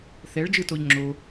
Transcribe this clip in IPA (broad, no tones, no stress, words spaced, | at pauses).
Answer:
θɛɭ d͡ʒɯtoʎŋ͡ǁo